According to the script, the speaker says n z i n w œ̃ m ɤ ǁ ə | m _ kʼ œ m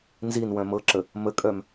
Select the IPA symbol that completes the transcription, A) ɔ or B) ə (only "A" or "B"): B